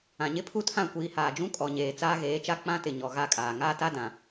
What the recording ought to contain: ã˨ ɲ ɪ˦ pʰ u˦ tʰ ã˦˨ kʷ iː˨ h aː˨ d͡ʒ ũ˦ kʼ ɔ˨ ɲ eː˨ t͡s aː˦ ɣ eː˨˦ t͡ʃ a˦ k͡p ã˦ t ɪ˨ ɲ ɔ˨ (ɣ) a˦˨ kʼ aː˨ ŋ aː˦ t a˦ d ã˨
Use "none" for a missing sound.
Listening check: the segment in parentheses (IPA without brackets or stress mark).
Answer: ɣ